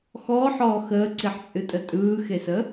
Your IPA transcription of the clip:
x ɔː ħ ɔː x əː ǀ i ħ t͡sʼ ɨ tʼ ə tʼ ɯː x e s ə

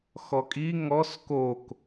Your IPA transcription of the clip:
x ɔ kʼ i ŋ ɔ s k o k

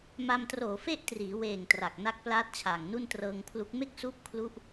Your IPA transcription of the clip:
m a˧ m t r oː˨˩ f e˥˩ ʔ t r iː˩˦ w eː˨˩ ŋ t r a˨˩ k̚ n a˦˥ k̚ p l aː˦˥ t̚ t͡ɕʰ aː˨˩ ŋ n u˥˩ n t r ɤː˧ ŋ pʰ l u˦˥ k̚ m e˥˩ k̚ s uː˦˥ p̚ kʰ l u˥˩ ʔ

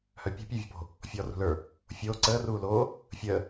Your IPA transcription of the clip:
h œ pʲ ɔ̤ pʲ ə˞ vʲ ṳ p o̤ | fʲ ɔː r ṳ l ə˞ | fʲ oː ǀ əː r uː l oː | fʲ əː

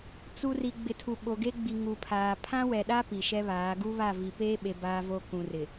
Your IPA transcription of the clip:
t͡s u˨ r i˨ ɡ͡b ɪ˨ tʰ u˨ ɓ o˨ ɡ e˦ ɡ͡b i˨ ŋ u˨ pʰ aː˨ pʰ ã˦ w ɛ˨ ɗ a˦ p i˨ ʃ ɛ˦ β aː˨˦ ɡ u˦ β a˦˨ v i˨ p eː˦ ɓ e˨ b aː˦ v o˦ k ũ˨ r ɪ˨

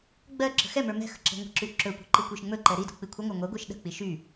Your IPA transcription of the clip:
ɡ͡b ɜ ǁ ə̤ x ɛ m ə˞ m ɛ̤ x ə̤ ǁ ɛ̤ ŋʷ ə̤ ǁ y ʔ ǁ ɵ kʷ i̤ ǃ i kʷ i ʃ ŋ͡m ɵ ǃ ɛ ɾ i d ə̤ k͡p i kʷʰ ə ŋʷ ɜ ŋʷ ɛ ɡʷ ɛ ʃ ɗ ə̤ k͡p i ʃ y

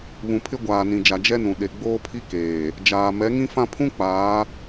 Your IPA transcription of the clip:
β ũ˨ pʰ ɪ˦ ɡʷ aː˨ n ĩ˨ d͡ʒ a˨ d͡ʒ ɛ˦ n ũ˨ ɗ e˨ ɡ͡b oː˦ pʰ i˦ k eː˨ | d͡ʒ aː˨ m ɛ˨˦ ŋ ĩ˦ f ã˦ pʰ ũ˦ k͡p aː˨˦

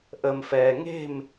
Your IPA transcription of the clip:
ʔ ə m f ɛː ŋ e̤ m

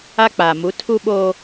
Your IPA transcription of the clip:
a˦ k͡p a˨ m u˨˦ tʰ u˦ ɓ oː˦

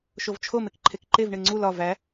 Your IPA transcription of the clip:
ʃ o v t͡ʃʰ o m e k ǃʰ e k ǃ e v ɳ e ŋ͡ǀ u l ɒ v æ

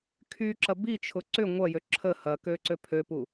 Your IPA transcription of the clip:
kʰ y ǁ ɐ b i t͡ʃʰ ʊ ǀ ʏ ŋʷ ɐ j ø ǁʰ ə h ɐ k ø ǀ ø pʰ ø p u

